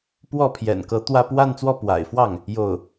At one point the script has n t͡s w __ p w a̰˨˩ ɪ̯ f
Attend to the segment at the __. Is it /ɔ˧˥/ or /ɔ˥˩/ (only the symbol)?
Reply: ɔ˥˩